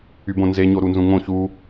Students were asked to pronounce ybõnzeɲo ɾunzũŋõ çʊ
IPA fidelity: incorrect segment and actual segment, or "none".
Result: ʊ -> u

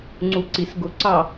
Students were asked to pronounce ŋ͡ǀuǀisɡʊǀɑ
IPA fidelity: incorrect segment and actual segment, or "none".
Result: none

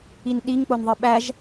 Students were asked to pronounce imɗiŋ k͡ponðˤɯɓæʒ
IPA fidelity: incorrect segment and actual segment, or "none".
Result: m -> n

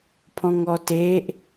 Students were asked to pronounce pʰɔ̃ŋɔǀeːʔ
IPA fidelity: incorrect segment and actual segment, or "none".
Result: ǀ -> t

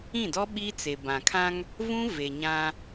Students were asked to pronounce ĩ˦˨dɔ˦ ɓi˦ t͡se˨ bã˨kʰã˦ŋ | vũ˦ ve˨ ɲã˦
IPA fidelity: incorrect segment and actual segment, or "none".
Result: none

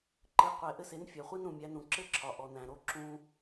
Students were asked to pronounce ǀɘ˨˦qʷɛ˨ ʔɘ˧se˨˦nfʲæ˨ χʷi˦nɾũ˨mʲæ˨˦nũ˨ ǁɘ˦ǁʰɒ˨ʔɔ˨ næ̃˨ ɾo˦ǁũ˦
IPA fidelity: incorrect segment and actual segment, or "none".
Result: ǀ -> ǃ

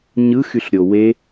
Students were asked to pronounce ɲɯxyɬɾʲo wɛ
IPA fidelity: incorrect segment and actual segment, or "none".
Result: ɛ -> e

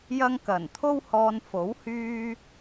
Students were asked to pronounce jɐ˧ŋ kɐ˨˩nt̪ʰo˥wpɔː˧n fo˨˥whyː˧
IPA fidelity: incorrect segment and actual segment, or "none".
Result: p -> h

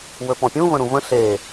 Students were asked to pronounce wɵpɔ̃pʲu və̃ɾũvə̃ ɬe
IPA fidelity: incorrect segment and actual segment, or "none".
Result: u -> ũ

